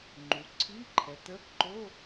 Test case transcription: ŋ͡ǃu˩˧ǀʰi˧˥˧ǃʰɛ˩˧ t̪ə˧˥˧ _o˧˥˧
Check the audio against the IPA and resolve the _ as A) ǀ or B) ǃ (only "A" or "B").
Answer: B